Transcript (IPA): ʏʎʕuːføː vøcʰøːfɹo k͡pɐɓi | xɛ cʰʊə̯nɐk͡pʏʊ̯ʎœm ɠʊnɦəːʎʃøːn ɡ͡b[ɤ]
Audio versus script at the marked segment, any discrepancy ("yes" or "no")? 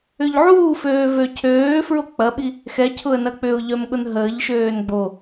yes